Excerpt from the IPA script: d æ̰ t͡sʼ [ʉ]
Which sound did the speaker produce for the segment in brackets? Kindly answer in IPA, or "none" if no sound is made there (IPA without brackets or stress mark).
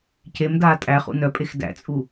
u